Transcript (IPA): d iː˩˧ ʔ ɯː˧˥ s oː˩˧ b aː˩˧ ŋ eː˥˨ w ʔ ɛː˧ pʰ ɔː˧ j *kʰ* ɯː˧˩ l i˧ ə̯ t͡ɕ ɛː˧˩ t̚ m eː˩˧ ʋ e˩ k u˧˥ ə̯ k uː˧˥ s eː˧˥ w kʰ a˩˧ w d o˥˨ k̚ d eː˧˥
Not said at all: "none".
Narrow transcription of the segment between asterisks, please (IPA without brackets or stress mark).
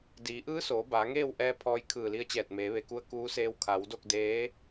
kʰ